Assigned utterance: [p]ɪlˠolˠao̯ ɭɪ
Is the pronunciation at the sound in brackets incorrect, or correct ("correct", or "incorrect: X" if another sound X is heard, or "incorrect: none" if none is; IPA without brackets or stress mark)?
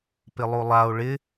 correct